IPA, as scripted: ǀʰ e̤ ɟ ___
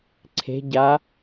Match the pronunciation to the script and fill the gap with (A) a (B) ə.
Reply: A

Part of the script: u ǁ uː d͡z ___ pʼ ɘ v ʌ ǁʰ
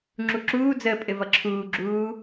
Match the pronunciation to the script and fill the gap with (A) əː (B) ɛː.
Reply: A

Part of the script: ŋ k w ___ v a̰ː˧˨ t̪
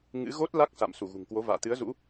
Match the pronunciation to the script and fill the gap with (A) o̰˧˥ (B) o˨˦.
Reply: B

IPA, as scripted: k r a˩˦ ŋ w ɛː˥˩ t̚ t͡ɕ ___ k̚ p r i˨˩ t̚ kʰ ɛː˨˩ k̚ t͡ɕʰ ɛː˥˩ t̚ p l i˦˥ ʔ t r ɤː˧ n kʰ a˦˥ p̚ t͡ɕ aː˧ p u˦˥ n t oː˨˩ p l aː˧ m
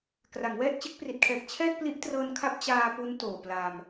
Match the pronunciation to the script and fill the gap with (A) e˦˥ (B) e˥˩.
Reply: A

